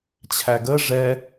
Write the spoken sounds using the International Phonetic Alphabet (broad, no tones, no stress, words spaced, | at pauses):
t͡ɕʰæɡə ʐɛ